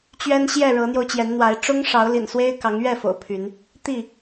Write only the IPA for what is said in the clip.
t͡ɕ ɥ ɛ˦ n ɕ j ɛ˥˨ ɻ ɤ˨˦ n̪ j o˧ ʊ̯ t͡ɕ j ɛ˨˦ n n̪ w a˨˦ ɪ̯ ʈ͡ʂ ʊ˦ ŋ ʂ ɑ˨˦ ʊ̯ l ḭ˨˩ n s w e˦ ɪ̯ k ɑ˨˦ ŋ ɥ ɛ˥˨ f o̰˨˩ ʊ̯ pʰ y˨˦ n | t̪ i˥˨

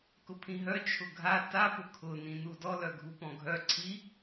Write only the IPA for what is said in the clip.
k ʊ pʰ ĩ ɦ œ t͡ʃʰ ʊ ɡʱ a t a p ʊ kʰ ʊ n ĩ n u d ɔ l œ ɡʱ u p ɔ̃ ɡʱ œ ǀʰ i

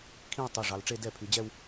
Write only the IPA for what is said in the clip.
kʰ ĩ˥˧ w tˤ i˩˧˩ ʐ ɑ˩˧ l ʈ͡ʂ e˥˧ d ɛ˥˩ pʰ y˩˧ d͡ʑ ɛ˥˧ w

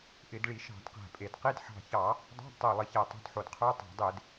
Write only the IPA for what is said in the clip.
ʔ ɪ˧˩˧ d ɭ i˧˩˧ ʃ ɑ̤˧˩˧ d q æ̤˨˩ pʼ e˧˩˧ d q i˧˥˧ d ħ ɑ̤˨˩ ç ɑ˧˩˧ | dˤ ɑ̤˧˥˧ d tˤ ə˞˨˩ lˠ ɪ˧˩˧ ç æ˨˩ tˤ o̤˧˥˧ d ħ o˧˩˧ d qʰ ə˞˧˥˧ tˤ ɑ̤˧˩˧ dˤ e˧˩˧ d

